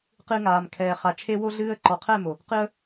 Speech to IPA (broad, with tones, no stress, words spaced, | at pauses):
qɨ˧ŋaː˨mkʰɛː˨ χa˨t͡ʃʰe˧wo˧ɮɨː˧ə̯ ǃɔ˨qʰɛ˦˨mo˨ | qɨ˧ə̯